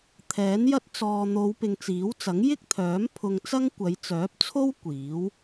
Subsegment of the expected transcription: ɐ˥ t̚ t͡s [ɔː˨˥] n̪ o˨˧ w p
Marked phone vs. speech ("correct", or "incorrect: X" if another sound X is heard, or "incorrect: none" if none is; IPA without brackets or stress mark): incorrect: ɔː˨